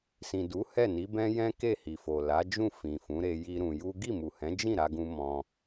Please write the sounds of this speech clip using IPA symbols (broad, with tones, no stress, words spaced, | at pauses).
sĩ˨du˨˦ hɛ˦˨ni˨˦bɛ̃˦ jɛ̃˦ke˦˨hi˨fo˨ la˨˦d͡ʒũ˦˨ fĩ˨fũ˨˦ɾe˧ ji˦ɾũ˧ ju˦ ɡi˦˨mu˨hɛ̃˨˦d͡ʒĩ˦˨ ɾa˧ɡũ˧ mɔ̃˦